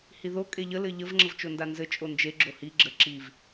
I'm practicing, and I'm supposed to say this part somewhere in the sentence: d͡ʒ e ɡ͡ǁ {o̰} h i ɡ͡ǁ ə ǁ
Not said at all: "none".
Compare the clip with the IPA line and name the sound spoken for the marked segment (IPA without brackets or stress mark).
o